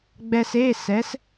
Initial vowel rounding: unrounded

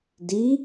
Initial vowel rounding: unrounded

